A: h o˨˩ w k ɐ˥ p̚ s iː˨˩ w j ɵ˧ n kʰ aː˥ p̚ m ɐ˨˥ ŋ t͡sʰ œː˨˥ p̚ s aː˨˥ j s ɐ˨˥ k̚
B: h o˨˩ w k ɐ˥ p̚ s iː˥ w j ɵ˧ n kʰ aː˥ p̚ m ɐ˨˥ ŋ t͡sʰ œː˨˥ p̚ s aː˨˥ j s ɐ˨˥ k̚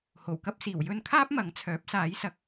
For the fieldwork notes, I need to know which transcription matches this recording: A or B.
A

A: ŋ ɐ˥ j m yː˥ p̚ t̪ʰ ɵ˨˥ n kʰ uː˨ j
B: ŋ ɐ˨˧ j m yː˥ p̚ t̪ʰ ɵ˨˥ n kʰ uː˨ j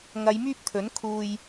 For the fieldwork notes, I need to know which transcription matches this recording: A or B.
B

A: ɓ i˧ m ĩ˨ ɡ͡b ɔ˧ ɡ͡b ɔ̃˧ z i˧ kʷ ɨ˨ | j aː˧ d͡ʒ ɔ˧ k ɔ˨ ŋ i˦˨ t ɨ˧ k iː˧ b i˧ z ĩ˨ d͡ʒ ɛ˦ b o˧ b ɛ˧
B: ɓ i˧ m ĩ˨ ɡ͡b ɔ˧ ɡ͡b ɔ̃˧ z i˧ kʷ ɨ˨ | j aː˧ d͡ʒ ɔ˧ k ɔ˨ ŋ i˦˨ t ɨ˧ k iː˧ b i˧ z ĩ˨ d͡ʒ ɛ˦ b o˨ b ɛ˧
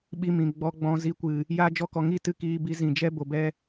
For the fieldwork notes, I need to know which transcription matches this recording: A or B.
B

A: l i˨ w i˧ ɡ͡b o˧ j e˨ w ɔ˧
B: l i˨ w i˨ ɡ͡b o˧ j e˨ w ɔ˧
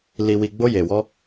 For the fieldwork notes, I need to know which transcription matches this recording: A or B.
B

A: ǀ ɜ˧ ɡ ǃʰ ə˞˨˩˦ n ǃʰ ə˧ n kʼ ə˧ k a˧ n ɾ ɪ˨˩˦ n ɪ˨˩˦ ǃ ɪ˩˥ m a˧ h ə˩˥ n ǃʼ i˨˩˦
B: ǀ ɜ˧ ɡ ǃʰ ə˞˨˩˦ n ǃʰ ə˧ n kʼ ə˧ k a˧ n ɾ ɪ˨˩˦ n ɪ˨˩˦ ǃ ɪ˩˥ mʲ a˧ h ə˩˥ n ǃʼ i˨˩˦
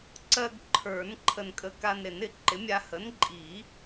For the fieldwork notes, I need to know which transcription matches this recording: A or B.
B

